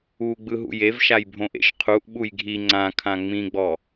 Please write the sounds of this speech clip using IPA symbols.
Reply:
uɡ͡bɯ ɦṵjevʃajbʱõ ʔḛʃqʰuʔ ɓujɡʱi ŋ͡ǀãkʰã ŋ͡mĩɡ͡bɔ

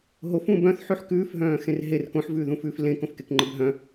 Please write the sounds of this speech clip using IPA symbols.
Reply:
ɦofũː bœ̃θħʉħ kʉːfɦœ̃ːxẽr ɦer kõħvʉːðũfʉːf lẽkõfkekŋ͡ǃɘb ɦœ̃

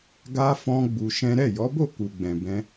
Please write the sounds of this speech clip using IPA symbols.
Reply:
ɡa˧fɔ̃˧ ɡ͡bu˧ʃɛ̃˦ ɾɛ˦˨jɔ˨˦bo˦˨ ku˨ɡ͡bɛ̃˨bɛ̃˧

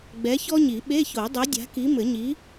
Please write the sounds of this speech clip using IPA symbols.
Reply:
ɡ͡bɛ˨˥çɔ˥ɲi˨˩˦ ɓe˧˥˧ço˨˩˦dˤe˨˥ dʲa̤˨˥ki˨˥ mɘ˨˩˦ ɲi˨˥

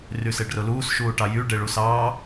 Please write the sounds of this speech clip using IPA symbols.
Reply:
ryseɖrʊluːs ʃuːʈɑjy ɖeɭusɑː

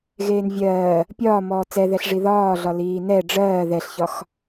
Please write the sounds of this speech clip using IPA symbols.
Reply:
ɣeːnvʲɜː | pʲɒː mɔːt͡sɛðɛɬʐi ðɒːɮɒ liːnɛ ɖ͡ʐɜː ðɛɬçɒx

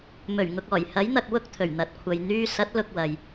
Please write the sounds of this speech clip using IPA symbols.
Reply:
mɵ˨˩ɥŋʊ˨k̚ɔː˨˩j hɐ˨˥jn̪ɐ˨k̚ wʊ˥k̚t̪ʰɵ˨˩ɥn̪ɐ˨t̚kʷʰɐ˨j n̪yː˧sɐ˨˥t̚ lʊ˧k̚wɐ˨j

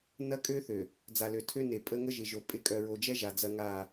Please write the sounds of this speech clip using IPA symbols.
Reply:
nɐ˦kʼø˦θø˨ | d͡za˨lø˨tʰø˦ne˨ pʼə˦ŋə˦ʒɪ˨ʒo˨ pʼɪ˨˦kʼœ˨ɹo˨d͡ʒɛ˦ ʒa˨d͡zɐ˦ŋa˦˨

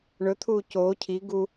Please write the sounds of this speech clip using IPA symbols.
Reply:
ɳɵ t̪ʰuːcoː cʰi ɡu

